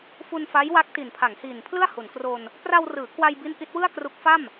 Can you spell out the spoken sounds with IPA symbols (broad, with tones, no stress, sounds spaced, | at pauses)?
f u˧ n f a˦˥ j w a˦˥ k̚ t i˨˩ n pʰ a˩˦ ŋ h iː˨˩ n pʰ l ɯ˥˩ a̯ h u˩˦ n k r o˧ n | p r a˧ w r ɯː˩˦ k w a˧ j b i˦˥ n ʔ i˦˥ t̚ w ɯ˥˩ a̯ k r u˦˥ k̚ f a˥˩ m